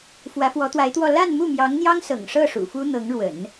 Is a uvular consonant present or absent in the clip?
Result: absent